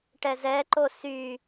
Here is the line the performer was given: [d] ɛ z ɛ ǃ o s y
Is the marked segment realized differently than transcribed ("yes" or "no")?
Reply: yes